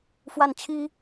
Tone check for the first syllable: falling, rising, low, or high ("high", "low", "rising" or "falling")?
falling